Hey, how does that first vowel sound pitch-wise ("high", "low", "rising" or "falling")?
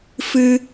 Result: high